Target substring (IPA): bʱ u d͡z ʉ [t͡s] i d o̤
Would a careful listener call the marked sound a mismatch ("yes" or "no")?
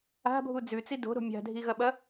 no